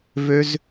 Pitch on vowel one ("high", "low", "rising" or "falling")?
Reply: high